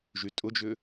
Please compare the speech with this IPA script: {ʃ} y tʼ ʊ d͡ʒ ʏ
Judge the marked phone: incorrect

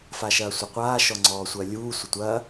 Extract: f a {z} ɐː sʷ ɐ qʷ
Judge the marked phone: incorrect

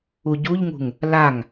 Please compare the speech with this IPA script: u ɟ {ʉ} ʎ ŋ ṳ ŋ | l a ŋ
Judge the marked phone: incorrect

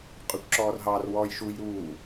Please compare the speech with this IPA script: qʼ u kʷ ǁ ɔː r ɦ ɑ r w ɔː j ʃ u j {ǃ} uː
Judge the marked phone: incorrect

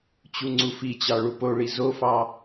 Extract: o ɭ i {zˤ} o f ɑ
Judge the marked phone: incorrect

